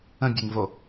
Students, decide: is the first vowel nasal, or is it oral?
nasal